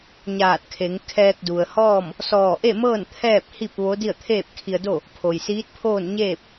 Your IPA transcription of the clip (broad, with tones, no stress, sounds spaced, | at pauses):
ɲ aː˧˩ t̚ kʰ e˩˧ ŋ kʰ ɛː˧ k̚ d u˩ ə̯ h ɔː˥˨ m | s ɔː˧˩ ʔ e˥˨ m ɤː˥˨ n t̪ʰ ɛː˥˨ p̚ h i˥˨ p̚ ʋ o˧˥ d i˥˨ ə̯ t̪ʰ eː˥˨ p̚ kʰ i˧ ə̯ d o˥˨ | pʰ o˩ j s iː˧˥ t̚ pʰ oː˥˨ n ɲ eː˥˨ p̚